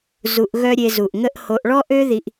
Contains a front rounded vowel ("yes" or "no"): yes